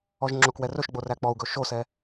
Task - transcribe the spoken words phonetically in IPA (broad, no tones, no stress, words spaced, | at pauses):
ɔʒŋ͡ǁokwɛ rɵʃɡ͡bo ræk͡pɔu̯ɡɵ ʃosɛ